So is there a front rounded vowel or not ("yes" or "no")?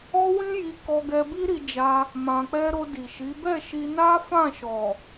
no